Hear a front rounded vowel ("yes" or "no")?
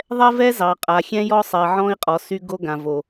yes